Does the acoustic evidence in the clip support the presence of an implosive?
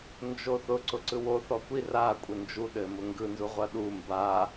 yes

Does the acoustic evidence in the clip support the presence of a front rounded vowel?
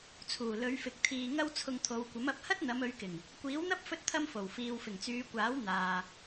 yes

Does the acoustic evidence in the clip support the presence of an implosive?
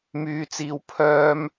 no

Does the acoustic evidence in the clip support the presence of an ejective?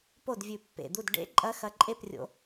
yes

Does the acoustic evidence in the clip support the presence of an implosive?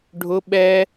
yes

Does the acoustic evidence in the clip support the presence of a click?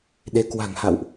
no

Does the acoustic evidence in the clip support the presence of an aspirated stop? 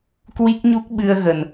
no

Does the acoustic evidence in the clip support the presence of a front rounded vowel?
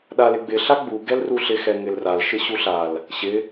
no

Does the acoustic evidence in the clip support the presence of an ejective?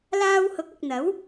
no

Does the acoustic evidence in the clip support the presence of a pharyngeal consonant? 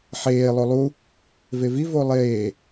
yes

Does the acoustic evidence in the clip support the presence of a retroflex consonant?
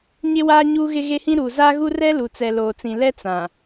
no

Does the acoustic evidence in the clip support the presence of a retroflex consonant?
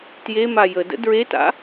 no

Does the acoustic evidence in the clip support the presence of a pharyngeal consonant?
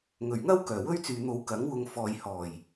no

